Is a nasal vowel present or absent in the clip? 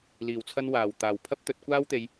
absent